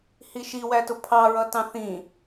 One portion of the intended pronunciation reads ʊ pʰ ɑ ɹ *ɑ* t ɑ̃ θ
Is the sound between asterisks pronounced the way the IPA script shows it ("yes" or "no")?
no